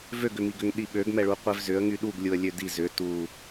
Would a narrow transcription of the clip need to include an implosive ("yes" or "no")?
yes